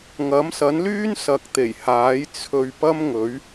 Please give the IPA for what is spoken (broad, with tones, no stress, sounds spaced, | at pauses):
ŋ ɐ˨˥ m s ɐ˨˥ n l yː˥ n s ɐ˨ k̚ t̪ e˨˩ j h aː˨˥ j t͡sʰ ɵ˧ ɥ p ɐ˥ m ŋ ɵ˨˥ ɥ